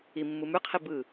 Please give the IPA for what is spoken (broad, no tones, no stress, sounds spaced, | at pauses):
i mː ɯ m ʉ qʰ i b ɯ